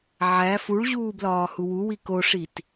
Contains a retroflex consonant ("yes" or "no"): yes